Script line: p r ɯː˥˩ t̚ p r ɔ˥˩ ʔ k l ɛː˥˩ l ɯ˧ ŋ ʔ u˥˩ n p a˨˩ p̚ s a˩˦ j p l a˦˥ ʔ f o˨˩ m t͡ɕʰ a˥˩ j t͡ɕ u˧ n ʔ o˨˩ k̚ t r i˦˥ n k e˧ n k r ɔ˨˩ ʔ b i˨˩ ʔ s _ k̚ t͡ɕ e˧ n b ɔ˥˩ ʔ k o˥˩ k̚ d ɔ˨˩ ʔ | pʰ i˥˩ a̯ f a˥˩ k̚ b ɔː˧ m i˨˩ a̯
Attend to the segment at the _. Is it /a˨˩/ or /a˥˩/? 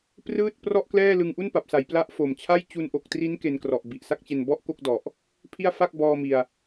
a˥˩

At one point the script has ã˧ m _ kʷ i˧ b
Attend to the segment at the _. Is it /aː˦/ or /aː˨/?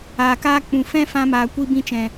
aː˨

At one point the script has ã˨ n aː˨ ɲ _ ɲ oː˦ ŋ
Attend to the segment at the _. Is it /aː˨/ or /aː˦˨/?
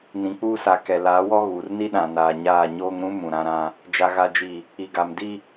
aː˦˨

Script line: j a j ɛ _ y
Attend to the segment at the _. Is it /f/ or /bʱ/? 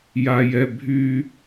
bʱ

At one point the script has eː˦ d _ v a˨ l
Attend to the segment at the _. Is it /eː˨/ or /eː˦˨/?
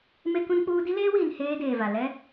eː˨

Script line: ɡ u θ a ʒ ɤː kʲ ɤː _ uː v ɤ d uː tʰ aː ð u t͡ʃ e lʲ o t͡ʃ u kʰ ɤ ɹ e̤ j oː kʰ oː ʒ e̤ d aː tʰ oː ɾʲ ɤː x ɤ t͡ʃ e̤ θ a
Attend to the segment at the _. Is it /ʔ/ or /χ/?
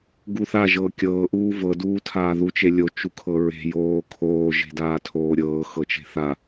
ʔ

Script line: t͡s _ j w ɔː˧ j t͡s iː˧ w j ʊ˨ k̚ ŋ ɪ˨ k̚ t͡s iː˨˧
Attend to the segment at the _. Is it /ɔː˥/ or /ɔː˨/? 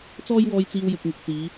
ɔː˥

